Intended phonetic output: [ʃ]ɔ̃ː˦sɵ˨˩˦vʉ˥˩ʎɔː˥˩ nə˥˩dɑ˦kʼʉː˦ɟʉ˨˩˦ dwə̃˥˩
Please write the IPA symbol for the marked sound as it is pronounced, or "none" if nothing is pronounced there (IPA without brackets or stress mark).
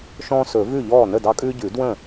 ʃ